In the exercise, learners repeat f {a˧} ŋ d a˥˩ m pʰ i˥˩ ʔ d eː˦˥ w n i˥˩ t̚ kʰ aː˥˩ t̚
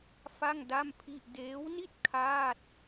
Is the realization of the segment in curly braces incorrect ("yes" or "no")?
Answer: yes